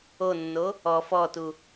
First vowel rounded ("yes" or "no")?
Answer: yes